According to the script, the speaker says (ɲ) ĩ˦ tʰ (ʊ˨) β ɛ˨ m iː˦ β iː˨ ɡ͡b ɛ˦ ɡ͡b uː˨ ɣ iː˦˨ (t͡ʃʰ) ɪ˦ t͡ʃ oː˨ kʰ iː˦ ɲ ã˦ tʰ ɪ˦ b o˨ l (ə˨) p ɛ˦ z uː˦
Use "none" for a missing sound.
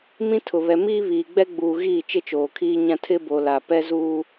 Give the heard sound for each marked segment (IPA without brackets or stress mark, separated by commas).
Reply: m, ʊ˨, t͡ʃ, a˨